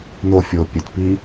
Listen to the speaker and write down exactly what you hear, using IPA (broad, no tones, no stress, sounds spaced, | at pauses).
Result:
n o fʲ o pʲ ɵ t p i